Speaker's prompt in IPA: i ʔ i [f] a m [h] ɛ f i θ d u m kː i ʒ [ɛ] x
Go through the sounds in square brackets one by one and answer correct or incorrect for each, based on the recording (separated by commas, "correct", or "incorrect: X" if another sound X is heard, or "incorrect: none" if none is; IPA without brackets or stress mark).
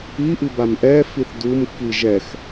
incorrect: b, incorrect: ʔ, correct